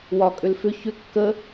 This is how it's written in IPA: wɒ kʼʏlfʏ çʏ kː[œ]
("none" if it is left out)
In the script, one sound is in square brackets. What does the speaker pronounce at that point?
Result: ə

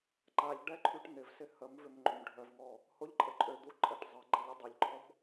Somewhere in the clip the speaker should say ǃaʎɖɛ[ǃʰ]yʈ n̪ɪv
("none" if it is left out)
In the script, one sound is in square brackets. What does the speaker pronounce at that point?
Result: ǃʰ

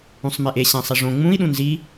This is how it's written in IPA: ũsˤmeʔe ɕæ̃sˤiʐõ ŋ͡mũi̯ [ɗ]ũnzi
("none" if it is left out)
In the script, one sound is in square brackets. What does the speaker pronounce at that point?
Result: ɗ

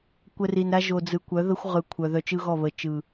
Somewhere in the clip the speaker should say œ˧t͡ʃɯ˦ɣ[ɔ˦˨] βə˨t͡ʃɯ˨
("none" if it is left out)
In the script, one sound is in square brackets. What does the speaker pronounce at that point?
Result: ɔ˦˨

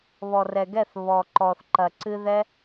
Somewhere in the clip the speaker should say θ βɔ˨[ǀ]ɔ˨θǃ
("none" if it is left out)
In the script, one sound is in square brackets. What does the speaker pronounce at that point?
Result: ǃ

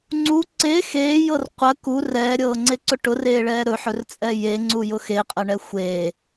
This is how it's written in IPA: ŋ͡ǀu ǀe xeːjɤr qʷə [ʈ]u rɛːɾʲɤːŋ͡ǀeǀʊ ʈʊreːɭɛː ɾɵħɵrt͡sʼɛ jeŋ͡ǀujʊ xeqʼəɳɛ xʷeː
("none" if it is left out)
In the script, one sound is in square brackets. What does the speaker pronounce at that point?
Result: k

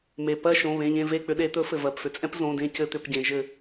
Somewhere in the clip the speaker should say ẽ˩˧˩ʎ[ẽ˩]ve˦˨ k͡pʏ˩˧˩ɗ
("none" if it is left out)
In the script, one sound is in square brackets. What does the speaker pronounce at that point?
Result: ẽ˦˨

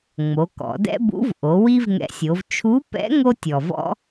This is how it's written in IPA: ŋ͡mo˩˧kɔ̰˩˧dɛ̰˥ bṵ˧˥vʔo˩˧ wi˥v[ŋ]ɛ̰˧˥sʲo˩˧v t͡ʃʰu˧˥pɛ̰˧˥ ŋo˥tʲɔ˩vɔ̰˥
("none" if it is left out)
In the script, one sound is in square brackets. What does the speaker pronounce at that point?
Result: ŋ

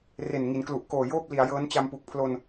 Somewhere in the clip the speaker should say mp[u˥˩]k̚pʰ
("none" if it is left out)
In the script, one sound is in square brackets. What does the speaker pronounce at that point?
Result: u˨˩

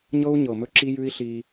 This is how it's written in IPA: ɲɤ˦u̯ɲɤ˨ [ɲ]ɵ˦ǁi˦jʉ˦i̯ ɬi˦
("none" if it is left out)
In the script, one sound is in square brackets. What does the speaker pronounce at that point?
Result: m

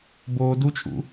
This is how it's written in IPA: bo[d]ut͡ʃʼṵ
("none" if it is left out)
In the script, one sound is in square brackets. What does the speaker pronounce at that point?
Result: d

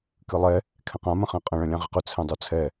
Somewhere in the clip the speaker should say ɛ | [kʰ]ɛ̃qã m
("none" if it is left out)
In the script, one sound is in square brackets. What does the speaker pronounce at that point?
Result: kʰ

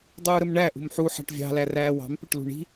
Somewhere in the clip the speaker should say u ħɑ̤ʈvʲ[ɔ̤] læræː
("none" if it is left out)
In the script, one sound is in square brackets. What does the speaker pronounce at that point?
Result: ɑ̤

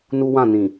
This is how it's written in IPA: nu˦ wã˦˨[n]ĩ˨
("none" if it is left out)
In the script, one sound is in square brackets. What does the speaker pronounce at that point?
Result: n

